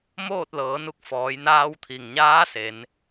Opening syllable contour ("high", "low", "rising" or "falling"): falling